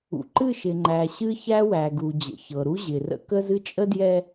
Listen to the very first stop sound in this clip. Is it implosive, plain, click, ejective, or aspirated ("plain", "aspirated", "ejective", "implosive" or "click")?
click